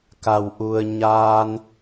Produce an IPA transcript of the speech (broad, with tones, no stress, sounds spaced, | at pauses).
k a˩ w ʔ u˩ ə̯ ɲ aː˧ n